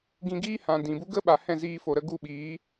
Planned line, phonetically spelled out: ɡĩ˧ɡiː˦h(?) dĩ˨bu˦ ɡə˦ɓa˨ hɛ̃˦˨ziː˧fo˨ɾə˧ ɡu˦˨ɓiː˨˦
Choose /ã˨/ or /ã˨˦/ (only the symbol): ã˨